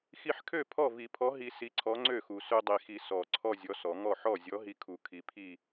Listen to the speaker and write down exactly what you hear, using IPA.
x i˧ ħ kʰ ø˥˩ pʰ ɔ˥˩ v i˨˩˦ pʰ ɔ˨˥ ɦ i˧ s i˨˥ ǀʰ ɔ˨˥ ŋ͡ǀ ø˥˩ x u˨˩ s ø˧ dˤ i˨˩ x i˨˩ s ɔ˨˩ ǀʰ ɔ˥˧ zʲ ɔ˨˥ s ɔ˨˩˦ ŋ ɔ˥˩ ħ ɔ˥˩ zʲ ɔ˨˥ ɦ i˧ kʰ u˨˩ kʰ i˨˥ pʰ i˥˧

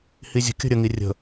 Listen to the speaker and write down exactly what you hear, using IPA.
h i zʲ ə̤ kʲ ə̤ ɾʲ ə ŋ i rʲ ə̤

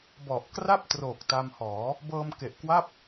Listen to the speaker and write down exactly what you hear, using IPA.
b ɔ˨˩ ʔ k r a˥˩ p̚ t r o˨˩ k̚ t a˧ m h ɔː˩˦ | b ɤː˧ m k e˨˩ ʔ k w a˥˩ p̚

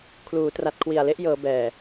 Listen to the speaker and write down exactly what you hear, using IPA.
kʰ l uː˩˦ t r a˨˩ t̚ kʰ w i˨˩ a̯ l e˦˥ ʔ j ɤː˩˦ b ɛː˨˩

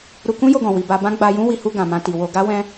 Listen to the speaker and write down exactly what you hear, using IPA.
ɾ u˧ k ũ˦ j o˧ ɡ ɔ̃˨ w i˨ b a˧ b ã˦ ɡ͡b a˧ j ũ˦ w i˧ h u˧ ɡ ã˨ m ã˧ t i˨ w o˧ ɡ a˦ w ɛ̃˧

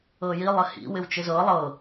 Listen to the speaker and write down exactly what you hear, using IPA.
ɤ j i lˠ ɪ h ḭ w ɪ w t͡ʃ ɪ z ɤ lˠ ɤ

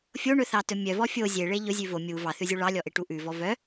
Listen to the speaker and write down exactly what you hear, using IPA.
fʲ o ɳ ɵ θ ɑ t ɵ mʲ œ v ɔ fʲ o zʲ e ɭ e ʎ ɵ zʲ ʉ v o mʲ u v ɑ θ ʉ zʲ u ɭ ɑ lʲ ɔ ʔ e ʈ u ʔ ʉ v ɔ v œ

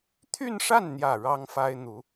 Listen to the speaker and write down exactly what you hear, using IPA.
t̪ʰ y˥˧ n ʂ a˥˩ n n̪ j ä˨˩ ɻ ɑ˥ ŋ f a˥ ɪ̯ n̪ u˧˥

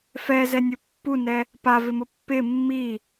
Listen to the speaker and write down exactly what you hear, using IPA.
f ɛ z ɛ nʲ ʊ pː u n ɛ | p a v ɪ m ʊ pː ɪ mː i

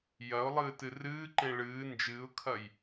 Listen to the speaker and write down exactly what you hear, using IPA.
j ɐ ʊ̯ lˠ ɨː t ɨ r ɨː ǃ ẽ ɭ ɨː n d͡ʒ ɨː ʊ̯ kʰ ɐ j

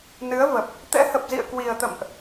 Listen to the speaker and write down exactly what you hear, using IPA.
n ɨ˨˦ ə̯ v ə˨˩ p̚ | t̪ ɛ̰˧˥ h ə˨˩ p̚ z ḭ˧˨ ə̯ k w i˨˩ ə̯ t̪ ə̰˧˨ m ʔ

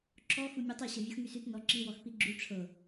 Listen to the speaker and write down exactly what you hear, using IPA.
ǁ ɔ x u mʲ ɒ tˤ i ɕ ɤ vʲ u x ŋ y s y t n ɔ ǁ i w ɔ x p i ɡ͡ǁ y ʈ͡ʂʰ ɤ

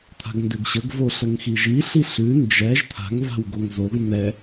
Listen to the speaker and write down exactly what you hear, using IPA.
t̪ʰ a̤ ɡ n d ø ɡ ɕ ə ɡ v o ɬ ə ŋ x i ʒ i ɬ i ɬ ʉ n d͡ʒ ɛ ʒ t̪ʰ a̤ ŋ v a̤ w ɡ o ŋ z o ɡ n̪ ɛ

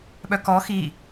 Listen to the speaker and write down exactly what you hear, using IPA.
ɓ œ k ɔ x i

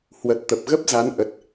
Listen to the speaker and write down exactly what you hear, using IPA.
h w ə˨˩ t̚ t̪ ə˨˩ p̚ ɣ ə˦˥ p̚ z a˨˦ n ʔ ə˨˩ t̚

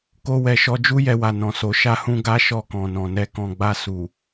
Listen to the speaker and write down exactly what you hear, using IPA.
k o˧ w ɛ˨ ʃ ɔ˧ d͡ʒ u˦ j ɛ˧ w a˨ n ɔ̃˨ s o˨˦ ʃ a˦ h ũ˦ ɡ a˦ ʃ ɔ˧ k ɔ̃˨ n ɔ̃˨ n ɛ˧ k ɔ̃˨ ɡ͡b a˧ s u˨

